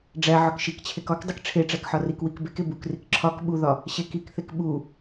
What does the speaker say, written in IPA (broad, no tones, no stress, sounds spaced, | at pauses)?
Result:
ɖ͡ʐ æ ʕ ɒ k ʃ i k t͡ɕʰ e k ɒ k dˤ i k ʈ͡ʂʰ e ʈ͡ʂ æ k ħ ɒ r i k w i k b e k e b u k r i k ǁʰ ɒ k ɓ u ð ɒ | ɕ e k i k θ e k ɓ u